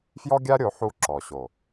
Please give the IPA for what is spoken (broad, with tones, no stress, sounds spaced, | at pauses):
f j ɔ˦ ɡʲ a˦ ɾʲ o˨˦ ħ u˦˨ ǁ ɔ˨ ɕ o˨